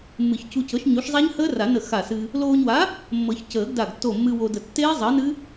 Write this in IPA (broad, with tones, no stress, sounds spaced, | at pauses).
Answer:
mː ɨ˨˩˦ ç c u˧ c ɤ˨˥ ʃ ɲ u˨˥ ʃ zˤ a˦˥ ɲ h əː˦˥ r a˨˩˦ n ə˧˩ x a˧˩ s ɨ˧ | l oː˧ ɲ w a˨˥ | mː ɤ˨˩˦ ç c əː˨˩˦ ɡ d a˧˩ ɡ tː o˧˩ mː ɨ˧ w o˧ d ə˧˩ tː eː˦˥ zˤ əː˨˥ n ɨ˦˥